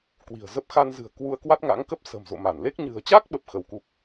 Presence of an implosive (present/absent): present